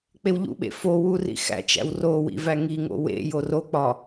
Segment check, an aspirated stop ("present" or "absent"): absent